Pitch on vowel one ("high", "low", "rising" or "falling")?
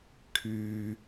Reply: high